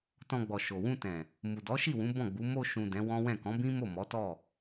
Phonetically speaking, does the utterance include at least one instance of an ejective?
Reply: no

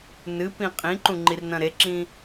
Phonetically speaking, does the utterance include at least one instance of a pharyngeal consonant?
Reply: no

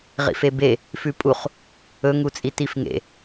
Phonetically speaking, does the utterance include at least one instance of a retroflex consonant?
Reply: no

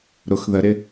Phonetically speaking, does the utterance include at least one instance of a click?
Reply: no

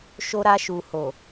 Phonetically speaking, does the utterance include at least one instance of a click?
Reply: no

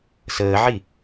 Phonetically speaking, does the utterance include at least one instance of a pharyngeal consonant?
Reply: yes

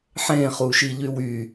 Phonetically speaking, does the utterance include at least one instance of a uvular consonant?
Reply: yes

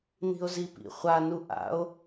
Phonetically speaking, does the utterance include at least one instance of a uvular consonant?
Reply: yes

